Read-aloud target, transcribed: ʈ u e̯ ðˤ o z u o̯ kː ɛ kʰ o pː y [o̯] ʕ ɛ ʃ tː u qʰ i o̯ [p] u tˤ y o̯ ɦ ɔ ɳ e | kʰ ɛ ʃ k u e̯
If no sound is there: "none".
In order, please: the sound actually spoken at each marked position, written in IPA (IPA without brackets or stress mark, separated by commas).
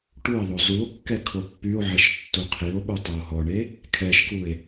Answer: o̯, ɓ